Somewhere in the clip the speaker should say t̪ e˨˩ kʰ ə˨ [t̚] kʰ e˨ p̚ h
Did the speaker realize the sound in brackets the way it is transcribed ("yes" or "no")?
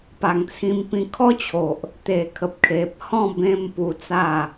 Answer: no